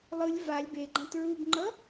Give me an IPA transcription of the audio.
lˠ ɯ lʲ v a lʲ b e ɡ͡ǃ ã t ɹ u b ŋ͡ǃ ʌ

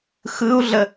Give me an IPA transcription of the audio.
x ɯ u̯ ɮ ə

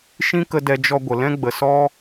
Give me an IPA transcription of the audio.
ʃ ĩ˦ k ə˧ d ɛ˧ d͡ʒ ɔ˧ ɡʷ ə˨ l ɛ̃˦ ɡ͡b ə˨ s ɔ˦

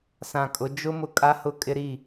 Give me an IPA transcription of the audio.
s ã˨ kʼ ʊ˨˦ d͡ʒ ʊ˦ m ʊ˦ kʼ a˦ h ʊ˦ kʼ ɪ˦ ɾ i˦˨

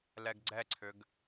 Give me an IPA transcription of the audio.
l ɛ ɡ ɡ͡ǀ ɛ ǀʰ ʏ ɡ

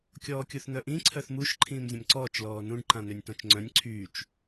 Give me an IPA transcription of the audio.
kʲ ɔː kʲ u θ n̪ œ ʔ ĩ ǀʰ œ θ m u ʃ ǃʰ ĩː m zʲ ə̃ m ǀ ɔː t͡ʃ l ɔː n ũ ɖ ǃ ã n ø nʲ t ɔ̃ t͡ʃ ŋ͡ǀ œ̃ nʲ ǀʰ yː t͡ʃ

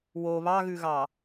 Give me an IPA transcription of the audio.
w o β ɑ ɣ ʉ ɣ ɑ

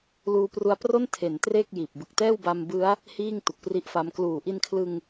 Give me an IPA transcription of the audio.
l uː˧ p r u˧ a̯ p r o˥˩ n tʰ e˩˦ n t r e˥˩ k̚ j iː˨˩ p̚ b ɯ˨˩ k̚ t ɛː˥˩ w b a˧ m b ɯ˦˥ a̯ | h iː˥˩ ŋ t u˨˩ k̚ p r i˦˥ ʔ f a˦˥ m k l uː˨˩ ʔ i˧ n kʰ l ɯ˧ ŋ

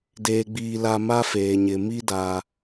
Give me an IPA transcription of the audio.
d eː˦ ɡ͡b iː˦ l a˦ m a˦ f eː˨ ɲ ɪ˨ m i˦ d a˨

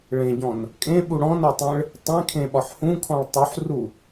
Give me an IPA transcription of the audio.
ɭ ẽ ɟ ɔ̃ n | kʼ ẽ ɓ u ɽ ɔ̃ n ɔ tˤ ẽ ɭ | tˤ ẽ kʰ ẽ ɓ ɒ ħ h ũ kʰ ɔ̃ ɭ tˤ u ħ r u

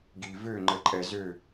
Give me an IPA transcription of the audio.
ɡ i˧ v ø˥˧ ŋ͡ǃ ə˧ ǃʼ ɛ˧ z ø˥˧

